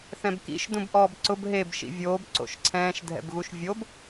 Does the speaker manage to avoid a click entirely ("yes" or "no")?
no